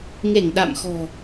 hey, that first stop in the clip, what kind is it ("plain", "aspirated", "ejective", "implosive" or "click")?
implosive